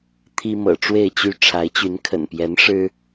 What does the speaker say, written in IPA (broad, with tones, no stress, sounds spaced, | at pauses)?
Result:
t̪ʰ i˦ m ɤ̰˨˩ ʈ͡ʂ w e˥˨ ɪ̯ t͡ɕ y˥˨ ʈ͡ʂʰ a˨˦ ɪ̯ t͡ɕ y˨˦ n kʰ ə̰˨˩ n p j ɛ˨˦ n ʂ ɻ̩˦